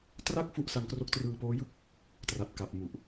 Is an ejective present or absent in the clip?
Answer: absent